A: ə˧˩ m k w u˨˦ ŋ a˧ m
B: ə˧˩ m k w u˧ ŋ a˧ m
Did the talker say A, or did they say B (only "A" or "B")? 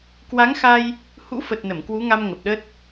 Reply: A